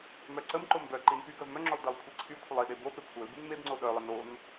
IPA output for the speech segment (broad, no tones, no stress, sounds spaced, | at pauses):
m œ ǀ ə m ǃ o m b œ ǃ i n p y ɡ œ v m œ ŋ͡ǁ œ lˠ d e lˠ kʷʰ i ǀʰ y kʷʰ ə lˠ i ɗ e b o p e kʷʰ œ l b y n m e b ŋ͡ǀ o ɗ œ lˠ ə n o n